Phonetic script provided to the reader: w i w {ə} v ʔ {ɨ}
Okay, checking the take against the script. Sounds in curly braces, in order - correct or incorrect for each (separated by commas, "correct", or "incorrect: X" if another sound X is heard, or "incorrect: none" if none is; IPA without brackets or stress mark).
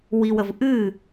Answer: correct, correct